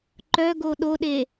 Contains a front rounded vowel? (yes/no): yes